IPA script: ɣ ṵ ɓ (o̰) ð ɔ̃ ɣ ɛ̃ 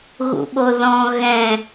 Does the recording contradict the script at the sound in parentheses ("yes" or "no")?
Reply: yes